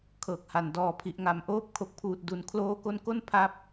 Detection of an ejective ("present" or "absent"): absent